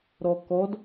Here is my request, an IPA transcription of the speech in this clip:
ɾ ɔ k ɔ d

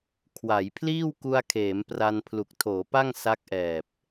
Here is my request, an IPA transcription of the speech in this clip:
kʰ w a˩˦ j pʰ l iː˥˩ w k u˧ a̯ kʰ eː˩˦ m p r a˧ n pʰ l u˨˩ k̚ tʰ oː˩˦ p a˥˩ ŋ s a˦˥ k̚ ʔ ɛː˨˩ p̚

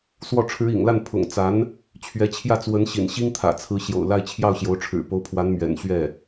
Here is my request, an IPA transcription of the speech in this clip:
s w ɔ˥˩ ʈ͡ʂʰ ɻ̩˧˥ ḭ˨˩ ŋ l a˥˩ n pʰ ʊ̰˨˩ ŋ t͡s a˧˥ n | t͡ɕʰ ɥ ɛ˧˥ t͡ɕʰ j ä˥˩ t͡s w ə˧˥ n ɕ ḭ˨˩ n ɕ i˥ ŋ t̪ʰ ä̰˨˩ t͡sʰ ɹ̩˧˥ ɕ j o̰˨˩ ʊ̯ l a˥˧ ɪ̯ t͡ɕʰ j ɑ˥˩ ʊ̯ ɕ j o˧˥ ʊ̯ ʈ͡ʂʰ ɻ̩˨˩ p o˧˥ ʊ̯ pʰ w a˧˥ n m ɥ ɛ̰˨˩ n ɕ ɥ ɛ˥˩

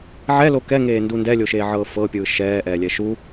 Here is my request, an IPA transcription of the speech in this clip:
ʕ ɛ l o k ɛ ŋ eː n d u n d ɛ lʲ o ʃ eː ʕ ɤː f ɤ pʲ ɯː ʃ ɛː ʔ ɛː lʲ ɛ ʃ u

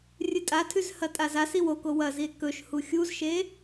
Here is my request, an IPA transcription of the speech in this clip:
rʲ ɨ tʼ a tʰ ʉ z h ɐ tʼ a z a s i w o k o w ɐ z i e̯ k ɵ ʃ h u xʲ u z ʃ e

